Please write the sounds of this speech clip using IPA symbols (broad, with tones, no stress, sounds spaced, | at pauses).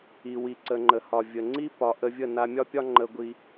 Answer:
i˨ w i˨ ǀ ə˨ ŋ͡ǃ ə˨ h ɒ˨ vʲ ə˨ ŋ͡ǀ i˦ p ɒ˧ ʔ ə˧ vʲ ə˦˨ n a˧ mʲ ɒ˦ pʲ ɒ˦ ŋ͡ǃ ə˧ ɡʷ i˧